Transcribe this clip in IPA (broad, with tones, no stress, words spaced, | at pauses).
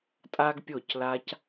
tʼa˦ɡpʲo˦˨cla˦c